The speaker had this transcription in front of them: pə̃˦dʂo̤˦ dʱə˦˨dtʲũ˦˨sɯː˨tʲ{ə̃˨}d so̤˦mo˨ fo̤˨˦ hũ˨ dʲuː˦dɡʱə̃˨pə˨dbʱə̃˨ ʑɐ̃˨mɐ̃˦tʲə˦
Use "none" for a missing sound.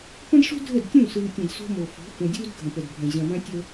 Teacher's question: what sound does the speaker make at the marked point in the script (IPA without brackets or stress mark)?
ɐ̃˨